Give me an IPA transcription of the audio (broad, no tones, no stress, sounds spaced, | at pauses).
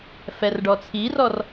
f ɛ r ɖ ɔ t͡sʰ i r ɔ r